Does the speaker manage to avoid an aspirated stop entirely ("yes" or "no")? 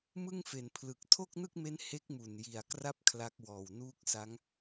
no